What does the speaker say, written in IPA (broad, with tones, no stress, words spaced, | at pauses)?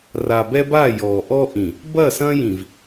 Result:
ra˨bɛ˦ba˦˨ jɔ˨ʔɔ˦ʔĩ˨ | bɐ˦˨sɐ̃˦jĩ˨v